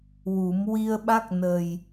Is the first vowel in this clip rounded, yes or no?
yes